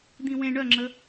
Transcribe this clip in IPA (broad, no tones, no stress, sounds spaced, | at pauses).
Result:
d̪ ĩ w ẽ ɳ œ ŋ͡ǁ ə